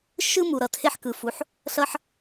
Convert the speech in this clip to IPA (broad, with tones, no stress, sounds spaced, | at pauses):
ʃ ɯ˦ m u˩ ɾ ʌ˩ tʰ e˥ ħ k ɯ˩ f u˩ ħ | ɬ ʌ˦ ħ